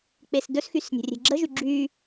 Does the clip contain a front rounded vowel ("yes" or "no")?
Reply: yes